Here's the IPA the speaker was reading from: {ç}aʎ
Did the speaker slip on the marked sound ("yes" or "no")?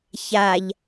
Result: no